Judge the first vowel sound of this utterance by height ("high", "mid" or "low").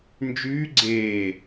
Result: high